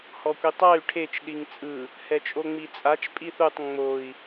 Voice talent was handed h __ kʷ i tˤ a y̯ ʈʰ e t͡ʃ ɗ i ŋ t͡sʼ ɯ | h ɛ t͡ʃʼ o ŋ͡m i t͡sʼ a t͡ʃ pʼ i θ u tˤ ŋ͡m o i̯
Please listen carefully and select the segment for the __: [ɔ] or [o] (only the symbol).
ɔ